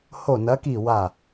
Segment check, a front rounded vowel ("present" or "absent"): absent